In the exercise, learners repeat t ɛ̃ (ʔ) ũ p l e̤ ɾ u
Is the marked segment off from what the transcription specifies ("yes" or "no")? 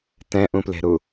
no